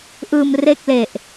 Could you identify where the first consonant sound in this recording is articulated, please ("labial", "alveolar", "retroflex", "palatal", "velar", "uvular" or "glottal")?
glottal